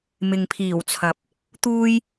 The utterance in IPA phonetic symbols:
mɪ˨ŋpʰiː˨˩wt͡sʰɐ˨p̚ | t̪uː˧j

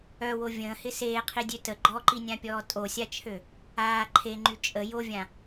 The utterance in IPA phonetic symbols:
œwo vʲə̃ːhɪ seːqʰidʲø tə ɡ͡ǃɔǃinʲãpʲɔː tʼosʲat͡ʃʰø | aː ǃʰeŋ͡ǃy t͡ʃʼə jovʲã

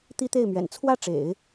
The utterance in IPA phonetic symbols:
t̪i˥t̪e˥˩ɪ̯mɥɛ̰˨˩n t͡sʰwä˥˩ ʈ͡ʂḛ˨˩˦ɪ̯

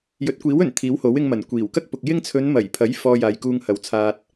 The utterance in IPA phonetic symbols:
jɵ˨˥t̚kʷiː˨˥wɵ˨˩n t̪ʰiː˨˥who˨˥wɪ˧ŋmɐ˨˩n kʷiː˨˩wkɐ˥k̚pʊ˨k̚jɪ˥ŋ t͡sʰɵ˨˧n mɐ˨˩jpʰɐ˨˥j fɔː˨ jaː˨jkuː˧ŋhɐ˨˥wt͡sʰaː˧t̚

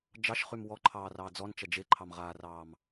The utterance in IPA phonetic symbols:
d͡ʒɑʃχym wɔǃʰɑːrɑː d͡zɔnt͡ʃɐ d͡ʒeǃʰɑmʁaːrɑːm

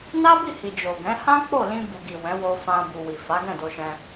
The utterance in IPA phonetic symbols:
na˦bi˦˨hi˨ d͡ʒo˨ɡɛ̃˨˦ hã˦ k͡po˦˨lĩ˧bu˨ɡi˨ wɛ̃˨˦wo˧fã˧ bu˨wi˨ fa˨˦ɡɛ̃˦˨do˧ʃɛ̃˧

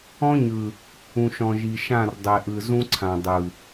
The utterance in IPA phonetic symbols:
ɔ̃˦ɲɯ˨ | ũ˨ʃɔ̃˨ʒi˨ʃã˦˨r dˤɛ˨ʔɯ˨zũ˦ǀʰã˨ dˤɯ˨

